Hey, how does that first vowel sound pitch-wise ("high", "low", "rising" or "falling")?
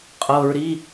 low